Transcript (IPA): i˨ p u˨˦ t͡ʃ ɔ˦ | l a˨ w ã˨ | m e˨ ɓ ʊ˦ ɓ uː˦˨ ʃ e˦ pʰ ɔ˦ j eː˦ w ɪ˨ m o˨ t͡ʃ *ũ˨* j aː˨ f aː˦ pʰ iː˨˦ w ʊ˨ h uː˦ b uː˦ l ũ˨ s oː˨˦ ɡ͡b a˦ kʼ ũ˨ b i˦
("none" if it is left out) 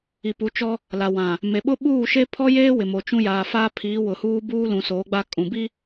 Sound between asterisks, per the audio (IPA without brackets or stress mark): ũ˦